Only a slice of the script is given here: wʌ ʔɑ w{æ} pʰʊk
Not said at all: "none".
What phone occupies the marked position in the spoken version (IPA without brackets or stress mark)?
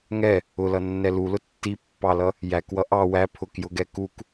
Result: æ